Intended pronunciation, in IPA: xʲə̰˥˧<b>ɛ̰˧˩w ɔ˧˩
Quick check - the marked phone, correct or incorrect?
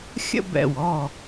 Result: correct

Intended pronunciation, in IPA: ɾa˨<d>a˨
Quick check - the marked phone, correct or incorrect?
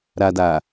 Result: correct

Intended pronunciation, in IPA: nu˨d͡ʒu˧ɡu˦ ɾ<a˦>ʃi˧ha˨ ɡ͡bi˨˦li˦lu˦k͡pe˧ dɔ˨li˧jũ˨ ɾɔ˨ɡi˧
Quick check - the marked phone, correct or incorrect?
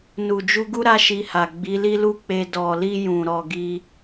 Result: correct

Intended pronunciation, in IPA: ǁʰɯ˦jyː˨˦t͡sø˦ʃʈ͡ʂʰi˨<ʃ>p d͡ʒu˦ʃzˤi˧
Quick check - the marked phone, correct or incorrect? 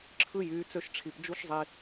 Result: incorrect: none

